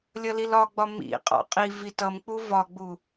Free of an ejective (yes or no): no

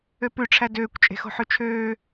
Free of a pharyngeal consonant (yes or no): no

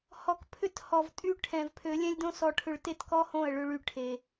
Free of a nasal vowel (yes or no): no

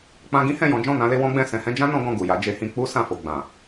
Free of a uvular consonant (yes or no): yes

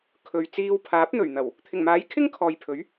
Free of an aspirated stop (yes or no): no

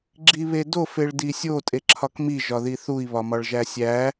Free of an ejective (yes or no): no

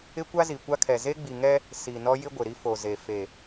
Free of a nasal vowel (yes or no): yes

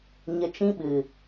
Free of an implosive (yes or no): no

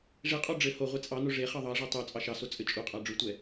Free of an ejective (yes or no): no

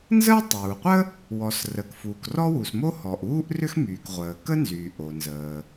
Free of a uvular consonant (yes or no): no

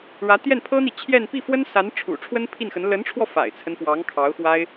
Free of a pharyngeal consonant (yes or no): yes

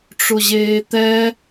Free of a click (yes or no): yes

